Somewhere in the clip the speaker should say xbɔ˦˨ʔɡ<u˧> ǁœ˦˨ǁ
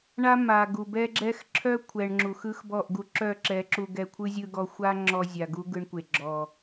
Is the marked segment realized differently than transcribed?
no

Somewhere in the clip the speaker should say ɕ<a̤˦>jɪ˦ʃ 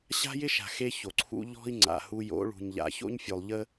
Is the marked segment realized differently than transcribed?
no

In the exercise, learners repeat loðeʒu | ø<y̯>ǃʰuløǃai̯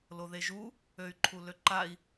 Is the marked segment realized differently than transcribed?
no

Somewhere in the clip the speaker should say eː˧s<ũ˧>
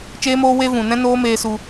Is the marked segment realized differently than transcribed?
yes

